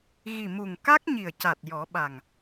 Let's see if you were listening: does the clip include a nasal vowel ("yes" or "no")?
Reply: no